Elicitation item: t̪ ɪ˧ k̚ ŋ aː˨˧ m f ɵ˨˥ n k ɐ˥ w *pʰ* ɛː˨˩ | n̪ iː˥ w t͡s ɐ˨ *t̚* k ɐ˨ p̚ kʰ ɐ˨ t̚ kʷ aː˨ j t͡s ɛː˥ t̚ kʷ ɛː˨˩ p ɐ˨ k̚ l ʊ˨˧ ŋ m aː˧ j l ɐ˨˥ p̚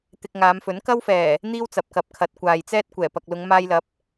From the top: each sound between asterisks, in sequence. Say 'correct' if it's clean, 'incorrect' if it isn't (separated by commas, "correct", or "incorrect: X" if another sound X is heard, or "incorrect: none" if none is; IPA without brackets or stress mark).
incorrect: f, incorrect: p̚